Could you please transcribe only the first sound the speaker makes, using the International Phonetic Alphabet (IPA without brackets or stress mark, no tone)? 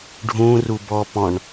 ɖʱ